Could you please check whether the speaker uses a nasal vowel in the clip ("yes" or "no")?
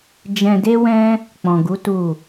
yes